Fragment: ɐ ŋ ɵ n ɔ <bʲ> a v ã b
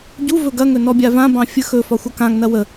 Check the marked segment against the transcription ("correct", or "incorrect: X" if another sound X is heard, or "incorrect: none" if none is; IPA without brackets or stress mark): correct